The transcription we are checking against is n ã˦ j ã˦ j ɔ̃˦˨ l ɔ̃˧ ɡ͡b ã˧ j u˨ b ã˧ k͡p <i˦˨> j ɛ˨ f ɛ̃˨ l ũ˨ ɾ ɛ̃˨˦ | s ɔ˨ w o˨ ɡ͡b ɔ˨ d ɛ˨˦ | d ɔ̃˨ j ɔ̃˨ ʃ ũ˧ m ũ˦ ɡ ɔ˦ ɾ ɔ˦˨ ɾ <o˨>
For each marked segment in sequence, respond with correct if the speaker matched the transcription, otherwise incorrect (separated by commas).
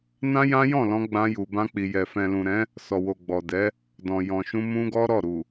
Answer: incorrect, incorrect